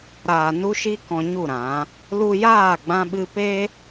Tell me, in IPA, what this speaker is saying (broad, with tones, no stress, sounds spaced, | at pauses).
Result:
ɾ aː˨ n u˦ ʃ i˦ k ɔ̃˧ ɲ u˦˨ ɾ ã˨˦ | l u˧ j aː˦˨ ɡ͡b ã˦ ɓ ɨ˦ p e˦